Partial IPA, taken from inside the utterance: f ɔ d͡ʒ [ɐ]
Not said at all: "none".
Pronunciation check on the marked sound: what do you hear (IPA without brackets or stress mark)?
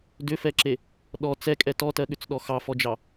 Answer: ɑ